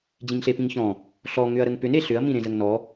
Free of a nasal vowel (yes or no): no